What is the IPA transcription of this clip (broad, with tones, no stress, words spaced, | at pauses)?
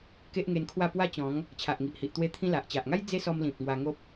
ke˦ʔŋe˧nkʰwa˥˧ pwa˥˧t͡ɕɔ̃˨˦ŋ | t͡ɕʰa˨ʔŋi˨ʔhi˨ʔt̪we˧ t̪ʰĩ˧la˨ʔt͡ɕa˨ʔŋa˦j d͡ze˦sɔ˧mlĩ˨p̚ ŋwa˧ ŋo˦p̚